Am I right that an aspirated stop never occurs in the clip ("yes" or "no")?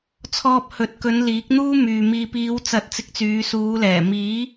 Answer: no